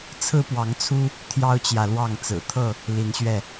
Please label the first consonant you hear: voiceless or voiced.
voiceless